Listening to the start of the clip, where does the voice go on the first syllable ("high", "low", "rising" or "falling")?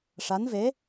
rising